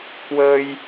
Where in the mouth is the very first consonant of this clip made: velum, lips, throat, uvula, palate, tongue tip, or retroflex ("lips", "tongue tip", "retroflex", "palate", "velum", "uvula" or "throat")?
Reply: velum